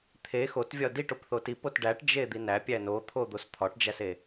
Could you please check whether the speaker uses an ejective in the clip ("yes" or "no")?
no